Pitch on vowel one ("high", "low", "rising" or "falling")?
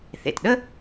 low